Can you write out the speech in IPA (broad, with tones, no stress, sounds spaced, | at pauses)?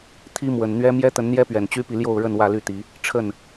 t̪ʰ i˦ m w ə˨˩ n n̪ ɥ ɛ˦ m j ɛ˦ t̪ ə˨˦ n n̪ j ɛ˦ p ɥ ɛ˨˩ n t͡ɕ y˦ p i˨ l j o˥˨ ʊ̯ ɻ ə˥˨ n w ä˥˨ l y˥˨ t̪ i˨˦ | ʈ͡ʂʰ ə˥˨ n